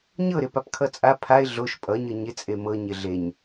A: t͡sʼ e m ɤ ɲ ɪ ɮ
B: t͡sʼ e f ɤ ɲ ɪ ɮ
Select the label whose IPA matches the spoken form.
A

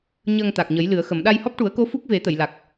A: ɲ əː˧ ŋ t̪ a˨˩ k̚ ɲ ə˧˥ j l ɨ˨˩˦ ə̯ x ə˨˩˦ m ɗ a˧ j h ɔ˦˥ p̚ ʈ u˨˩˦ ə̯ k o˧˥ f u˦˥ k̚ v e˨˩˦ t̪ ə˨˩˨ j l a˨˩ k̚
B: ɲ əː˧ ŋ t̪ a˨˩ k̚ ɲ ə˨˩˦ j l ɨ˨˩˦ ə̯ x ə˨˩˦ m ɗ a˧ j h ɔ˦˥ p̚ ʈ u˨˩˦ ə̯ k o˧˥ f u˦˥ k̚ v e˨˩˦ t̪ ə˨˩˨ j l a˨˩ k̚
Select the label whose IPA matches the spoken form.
B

